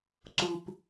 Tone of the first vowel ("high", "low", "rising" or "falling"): low